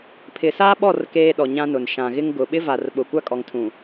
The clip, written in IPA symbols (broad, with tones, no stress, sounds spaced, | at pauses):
pʰ ɪ˨ s aː˦ ɓ ɔ˦˨ r k eː˦ ɗ ɔ˨ ɲ ã˦ n ʊ˨ n ʃ ã˨ ɣ ɪ˦ ŋ ɡ ʊ˨ ɓ ɪ˦ v a˨ r ɓ ʊ˨ kʷ a˦ kʼ ɔ˨ ŋ tʰ ũ˨